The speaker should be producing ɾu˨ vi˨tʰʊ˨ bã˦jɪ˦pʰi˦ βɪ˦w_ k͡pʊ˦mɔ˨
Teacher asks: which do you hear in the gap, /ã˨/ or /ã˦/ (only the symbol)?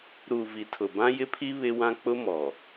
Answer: ã˦